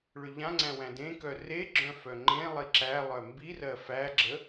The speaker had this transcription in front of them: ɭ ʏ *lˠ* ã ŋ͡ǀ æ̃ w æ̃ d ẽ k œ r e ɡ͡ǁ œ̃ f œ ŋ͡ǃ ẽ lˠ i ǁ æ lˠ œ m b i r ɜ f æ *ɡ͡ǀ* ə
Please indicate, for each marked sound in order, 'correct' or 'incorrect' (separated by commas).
incorrect, incorrect